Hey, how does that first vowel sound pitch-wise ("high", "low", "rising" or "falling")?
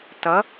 rising